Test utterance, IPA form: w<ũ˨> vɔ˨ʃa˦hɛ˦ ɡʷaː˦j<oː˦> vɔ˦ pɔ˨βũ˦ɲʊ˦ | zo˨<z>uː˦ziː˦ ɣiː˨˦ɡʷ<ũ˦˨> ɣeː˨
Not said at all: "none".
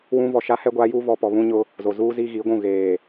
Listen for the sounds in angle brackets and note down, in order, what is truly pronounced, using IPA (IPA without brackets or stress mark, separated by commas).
ũ˦, uː˦, z, ũ˦˨